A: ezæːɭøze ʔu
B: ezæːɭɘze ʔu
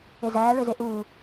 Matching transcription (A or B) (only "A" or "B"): A